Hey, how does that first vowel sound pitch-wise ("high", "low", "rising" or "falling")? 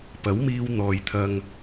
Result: rising